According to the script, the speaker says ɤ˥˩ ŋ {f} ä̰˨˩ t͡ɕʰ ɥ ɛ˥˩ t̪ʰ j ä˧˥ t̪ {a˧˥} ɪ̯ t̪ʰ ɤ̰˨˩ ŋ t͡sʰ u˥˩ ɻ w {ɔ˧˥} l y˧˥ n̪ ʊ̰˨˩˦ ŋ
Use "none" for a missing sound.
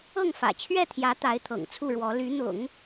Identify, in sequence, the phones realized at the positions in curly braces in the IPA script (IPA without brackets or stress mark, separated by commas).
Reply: f, a˧˥, ɔ˧˥